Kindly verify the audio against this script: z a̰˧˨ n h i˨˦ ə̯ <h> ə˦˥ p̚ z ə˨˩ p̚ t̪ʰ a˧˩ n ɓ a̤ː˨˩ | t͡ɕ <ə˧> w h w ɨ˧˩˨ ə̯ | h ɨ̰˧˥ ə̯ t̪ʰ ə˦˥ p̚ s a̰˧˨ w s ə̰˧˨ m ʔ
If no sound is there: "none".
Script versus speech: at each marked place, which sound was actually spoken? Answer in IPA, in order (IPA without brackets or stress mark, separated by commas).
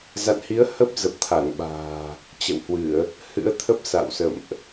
h, ə̰˧˨